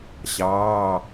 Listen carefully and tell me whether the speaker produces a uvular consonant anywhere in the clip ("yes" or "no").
no